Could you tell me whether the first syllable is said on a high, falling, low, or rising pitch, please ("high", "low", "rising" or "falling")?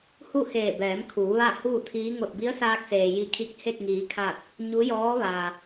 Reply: falling